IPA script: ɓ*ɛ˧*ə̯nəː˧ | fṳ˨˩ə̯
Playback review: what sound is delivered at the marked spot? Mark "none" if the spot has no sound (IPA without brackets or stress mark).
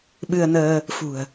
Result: ɨ˧